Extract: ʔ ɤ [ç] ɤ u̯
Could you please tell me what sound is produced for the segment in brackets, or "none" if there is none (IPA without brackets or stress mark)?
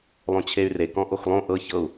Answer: ç